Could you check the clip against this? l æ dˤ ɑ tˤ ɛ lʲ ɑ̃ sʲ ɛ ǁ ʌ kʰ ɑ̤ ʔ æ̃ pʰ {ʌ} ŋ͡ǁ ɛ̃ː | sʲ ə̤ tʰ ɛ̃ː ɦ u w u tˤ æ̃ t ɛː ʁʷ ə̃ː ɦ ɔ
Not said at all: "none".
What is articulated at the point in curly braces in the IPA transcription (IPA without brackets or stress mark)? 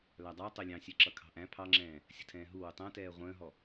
ɑ